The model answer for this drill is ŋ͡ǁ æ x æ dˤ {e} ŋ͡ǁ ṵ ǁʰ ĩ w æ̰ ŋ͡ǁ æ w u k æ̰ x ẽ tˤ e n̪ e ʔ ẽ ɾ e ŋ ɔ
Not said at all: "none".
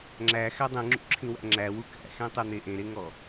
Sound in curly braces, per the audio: ẽ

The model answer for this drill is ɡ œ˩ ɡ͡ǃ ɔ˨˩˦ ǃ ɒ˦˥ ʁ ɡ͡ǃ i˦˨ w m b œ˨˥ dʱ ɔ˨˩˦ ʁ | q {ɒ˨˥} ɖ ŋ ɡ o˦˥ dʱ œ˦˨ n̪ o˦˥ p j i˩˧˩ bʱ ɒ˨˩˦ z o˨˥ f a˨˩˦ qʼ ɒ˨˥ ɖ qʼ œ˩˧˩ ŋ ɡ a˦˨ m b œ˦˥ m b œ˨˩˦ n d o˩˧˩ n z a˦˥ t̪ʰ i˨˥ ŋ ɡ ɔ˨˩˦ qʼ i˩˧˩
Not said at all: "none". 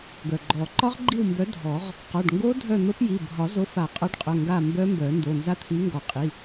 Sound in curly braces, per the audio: ɒ˩˧˩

